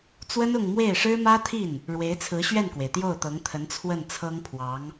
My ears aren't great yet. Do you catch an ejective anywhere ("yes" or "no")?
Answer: no